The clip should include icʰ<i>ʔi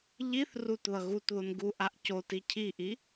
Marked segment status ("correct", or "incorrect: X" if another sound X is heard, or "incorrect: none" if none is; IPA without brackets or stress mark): correct